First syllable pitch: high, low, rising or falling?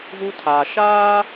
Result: high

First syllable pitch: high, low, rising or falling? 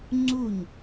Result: falling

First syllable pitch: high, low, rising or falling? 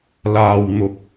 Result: low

